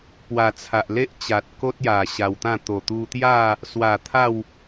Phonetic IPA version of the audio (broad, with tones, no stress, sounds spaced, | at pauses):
p w a˨˩ t͡sʰ a˨ ʔ l e˦ ʔ t͡ɕ a˨ t̚ k o˦ t̚ j a˨˩ ɕ a˧ w t̪ ã˥˧ t̪ o˨˩ t̪ u˧ t̪ j a˥˧ | s w a˨˩ t̪ʰ a˥˧ w